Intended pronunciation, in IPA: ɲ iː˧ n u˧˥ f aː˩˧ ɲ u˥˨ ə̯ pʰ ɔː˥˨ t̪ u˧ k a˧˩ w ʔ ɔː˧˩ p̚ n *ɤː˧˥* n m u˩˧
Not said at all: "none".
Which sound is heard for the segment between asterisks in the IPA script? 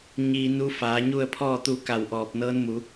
ɤː˧˥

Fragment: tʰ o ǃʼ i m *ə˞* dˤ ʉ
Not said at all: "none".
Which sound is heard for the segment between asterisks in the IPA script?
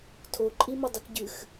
ɐ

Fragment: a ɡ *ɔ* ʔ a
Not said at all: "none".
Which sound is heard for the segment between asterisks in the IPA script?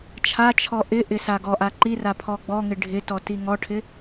ɔ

